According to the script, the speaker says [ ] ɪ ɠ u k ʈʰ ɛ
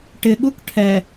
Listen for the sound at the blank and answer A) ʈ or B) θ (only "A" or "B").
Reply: A